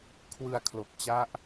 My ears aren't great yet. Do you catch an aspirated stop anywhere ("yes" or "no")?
yes